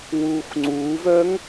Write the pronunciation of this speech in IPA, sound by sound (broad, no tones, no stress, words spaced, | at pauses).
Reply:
wuːxŋ͡ǀuːvœːŋ